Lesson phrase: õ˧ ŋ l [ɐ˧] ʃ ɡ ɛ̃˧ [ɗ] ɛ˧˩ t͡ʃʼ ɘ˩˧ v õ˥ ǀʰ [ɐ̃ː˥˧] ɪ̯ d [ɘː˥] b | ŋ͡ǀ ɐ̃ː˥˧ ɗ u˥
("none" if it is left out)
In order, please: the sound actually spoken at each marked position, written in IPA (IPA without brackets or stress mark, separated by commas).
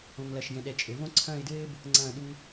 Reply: ɐ˧, ɗ, ɐ̃ː˥˧, ɘː˥